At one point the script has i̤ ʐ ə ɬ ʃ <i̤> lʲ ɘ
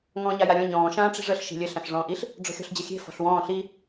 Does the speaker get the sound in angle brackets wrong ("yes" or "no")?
no